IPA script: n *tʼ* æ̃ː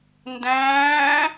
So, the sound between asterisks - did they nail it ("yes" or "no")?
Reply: no